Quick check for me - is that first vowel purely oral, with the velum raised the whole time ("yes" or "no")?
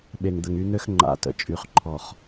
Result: yes